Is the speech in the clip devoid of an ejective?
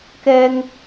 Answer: yes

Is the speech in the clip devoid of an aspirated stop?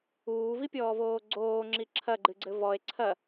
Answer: no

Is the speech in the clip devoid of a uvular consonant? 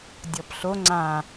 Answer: yes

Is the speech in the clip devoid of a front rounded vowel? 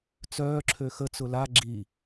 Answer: no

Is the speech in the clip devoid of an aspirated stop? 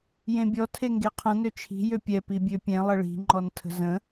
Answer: no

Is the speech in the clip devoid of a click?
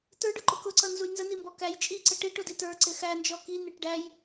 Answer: no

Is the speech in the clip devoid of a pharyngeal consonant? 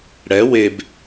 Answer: yes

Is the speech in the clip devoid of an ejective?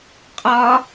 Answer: no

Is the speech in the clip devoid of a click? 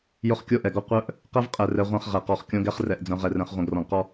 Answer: yes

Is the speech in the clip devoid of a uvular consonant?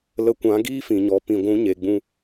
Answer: yes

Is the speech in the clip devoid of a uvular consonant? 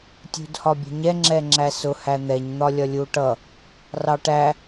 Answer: yes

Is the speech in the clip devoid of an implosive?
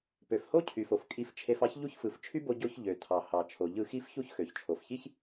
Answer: yes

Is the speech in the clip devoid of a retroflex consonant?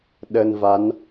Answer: yes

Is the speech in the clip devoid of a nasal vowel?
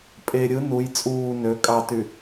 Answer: yes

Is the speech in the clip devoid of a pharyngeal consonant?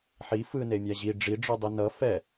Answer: no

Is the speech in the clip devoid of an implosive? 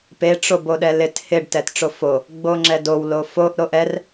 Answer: no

